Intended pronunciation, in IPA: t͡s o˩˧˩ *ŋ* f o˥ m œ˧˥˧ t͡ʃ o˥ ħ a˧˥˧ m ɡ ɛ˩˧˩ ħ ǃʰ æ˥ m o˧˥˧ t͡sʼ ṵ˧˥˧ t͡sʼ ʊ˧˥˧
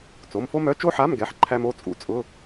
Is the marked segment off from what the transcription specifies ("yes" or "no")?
yes